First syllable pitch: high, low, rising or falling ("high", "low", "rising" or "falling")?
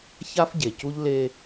high